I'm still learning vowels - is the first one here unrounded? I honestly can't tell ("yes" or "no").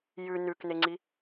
no